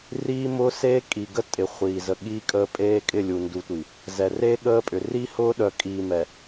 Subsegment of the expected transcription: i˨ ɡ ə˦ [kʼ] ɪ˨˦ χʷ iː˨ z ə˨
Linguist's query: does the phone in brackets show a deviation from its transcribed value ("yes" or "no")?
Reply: yes